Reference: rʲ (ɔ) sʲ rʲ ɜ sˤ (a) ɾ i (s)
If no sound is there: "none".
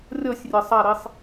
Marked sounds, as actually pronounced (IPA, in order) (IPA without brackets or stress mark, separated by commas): ɔ, a, sˤ